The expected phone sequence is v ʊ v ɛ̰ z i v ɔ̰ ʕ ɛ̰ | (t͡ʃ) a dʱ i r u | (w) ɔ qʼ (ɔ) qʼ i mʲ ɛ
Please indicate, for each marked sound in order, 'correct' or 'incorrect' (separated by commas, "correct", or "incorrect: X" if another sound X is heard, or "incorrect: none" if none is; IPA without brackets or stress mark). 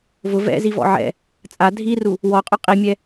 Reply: incorrect: t͡sʼ, correct, incorrect: ʊ